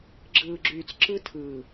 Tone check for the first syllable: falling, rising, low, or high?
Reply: low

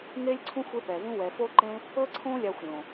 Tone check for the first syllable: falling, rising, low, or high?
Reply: high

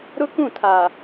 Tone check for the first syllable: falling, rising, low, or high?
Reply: high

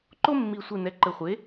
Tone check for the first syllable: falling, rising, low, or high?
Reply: high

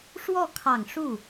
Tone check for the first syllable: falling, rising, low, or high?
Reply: falling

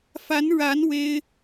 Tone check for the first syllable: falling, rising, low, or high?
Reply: rising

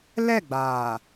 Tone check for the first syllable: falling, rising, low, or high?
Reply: falling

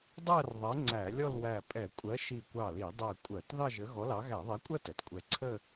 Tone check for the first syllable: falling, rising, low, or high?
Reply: falling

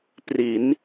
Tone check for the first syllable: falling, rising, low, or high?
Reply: rising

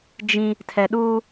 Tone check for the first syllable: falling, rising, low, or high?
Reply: high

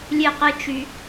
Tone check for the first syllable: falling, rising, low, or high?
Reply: high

